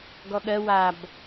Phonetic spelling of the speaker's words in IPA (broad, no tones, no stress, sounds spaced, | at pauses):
ɡ ɔ ɠ ɜ w a b